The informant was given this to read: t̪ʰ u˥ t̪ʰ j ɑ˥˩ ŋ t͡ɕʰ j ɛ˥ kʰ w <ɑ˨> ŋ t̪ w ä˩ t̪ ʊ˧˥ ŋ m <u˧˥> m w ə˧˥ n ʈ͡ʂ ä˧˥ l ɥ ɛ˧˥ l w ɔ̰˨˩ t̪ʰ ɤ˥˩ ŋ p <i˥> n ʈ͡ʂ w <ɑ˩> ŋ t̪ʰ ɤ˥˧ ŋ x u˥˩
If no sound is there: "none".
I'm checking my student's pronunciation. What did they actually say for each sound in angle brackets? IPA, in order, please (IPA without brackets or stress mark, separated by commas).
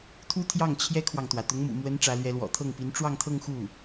ɑ˨, ṵ˨˩, i˧˥, ɑ˥˧